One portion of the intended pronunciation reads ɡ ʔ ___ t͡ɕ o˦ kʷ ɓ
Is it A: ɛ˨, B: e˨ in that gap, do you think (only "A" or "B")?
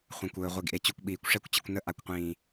B